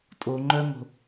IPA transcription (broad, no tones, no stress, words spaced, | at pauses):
tʼo ŋ͡ǃœŋo̤